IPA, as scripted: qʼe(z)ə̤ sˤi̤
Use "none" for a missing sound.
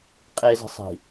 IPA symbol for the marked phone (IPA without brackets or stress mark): z